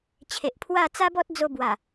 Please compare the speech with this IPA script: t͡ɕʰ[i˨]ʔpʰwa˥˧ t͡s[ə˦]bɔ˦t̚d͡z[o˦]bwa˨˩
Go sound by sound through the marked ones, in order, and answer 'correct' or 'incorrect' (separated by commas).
incorrect, incorrect, incorrect